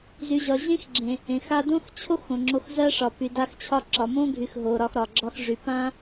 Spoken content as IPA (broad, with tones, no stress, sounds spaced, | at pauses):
z y˨ ʑ ɒ˨ ʑ ẽ˦ x ɡ͡ǁ ẽ˨ | ẽ˨ x a˧ d õ˦ x t͡ɕʰ o˦ x õ˨ ŋ͡ǁ o˧ x z ɜ˦ ʂ ɒ˨ p y˨ d a˧ x t͡ɕʰ ɒ˧ ǁ ɒ˨ m õ˦ ɡʱ y˨ x ɦ o˨ ɾ ɒ˧ x ɾ ɒ˨ ɡ͡ǁ ɒ˧ x ʐ y˨ p ã˦